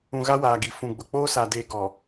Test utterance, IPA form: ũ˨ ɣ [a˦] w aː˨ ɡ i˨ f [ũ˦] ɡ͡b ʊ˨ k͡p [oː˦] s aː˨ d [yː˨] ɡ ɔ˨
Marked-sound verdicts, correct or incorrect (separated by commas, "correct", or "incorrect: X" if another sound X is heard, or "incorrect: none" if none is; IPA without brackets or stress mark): correct, incorrect: ũ˨, correct, incorrect: eː˨